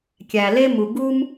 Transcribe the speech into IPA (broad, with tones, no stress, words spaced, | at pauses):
kʲæ˩ le˥mu˩ ɡu˥m